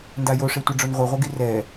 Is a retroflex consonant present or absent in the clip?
present